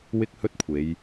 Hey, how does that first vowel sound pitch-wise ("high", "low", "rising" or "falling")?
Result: high